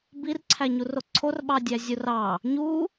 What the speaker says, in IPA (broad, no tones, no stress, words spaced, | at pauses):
birǀʰæɲuro ǀʰorɓɑdʲæ zʲurɑ | ɲu